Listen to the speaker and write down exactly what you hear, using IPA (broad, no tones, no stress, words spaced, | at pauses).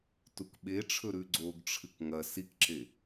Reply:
tukɓeʈ͡ʂʰɵ ɾʉɡ͡ǀoɡʈ͡ʂʰɨk ŋɐ sikǁe